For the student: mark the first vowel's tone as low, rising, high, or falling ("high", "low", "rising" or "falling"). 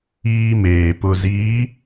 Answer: high